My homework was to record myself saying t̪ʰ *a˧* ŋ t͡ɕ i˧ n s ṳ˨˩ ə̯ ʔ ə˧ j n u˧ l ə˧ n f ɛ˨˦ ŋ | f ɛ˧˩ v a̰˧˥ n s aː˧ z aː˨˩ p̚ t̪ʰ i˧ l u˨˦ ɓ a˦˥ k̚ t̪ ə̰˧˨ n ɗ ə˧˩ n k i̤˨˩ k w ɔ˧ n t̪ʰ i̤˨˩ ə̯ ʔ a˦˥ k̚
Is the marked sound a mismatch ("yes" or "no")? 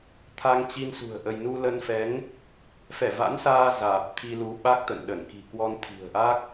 no